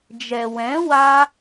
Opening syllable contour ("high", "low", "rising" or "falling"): low